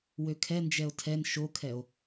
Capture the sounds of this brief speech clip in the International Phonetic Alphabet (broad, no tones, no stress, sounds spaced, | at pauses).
w ø kʰ ɛ n d͡ʒ ɛ o̯ tʰ ɛ n ʃ o kʰ ɛ o̯